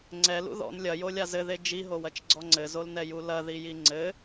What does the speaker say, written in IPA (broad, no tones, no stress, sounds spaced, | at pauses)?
ŋ͡ǀ ɛ l ṵ ð ɔ̰ n lʲ ɐ j o lʲ a z ɘ ð e d͡ʒ i ɦ o w ɐ t͡ʃ ɡ͡ǀ ɔ ŋ͡ǀ ɘ z o l n ɛ j u l ɐ ð i j i ŋ͡ǀ ɘ